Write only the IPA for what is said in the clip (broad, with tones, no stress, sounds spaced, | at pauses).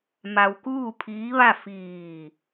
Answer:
m a˧ w k uː˥˨ pʰ iː˧˥ ʋ a˥˨ f iː˧˩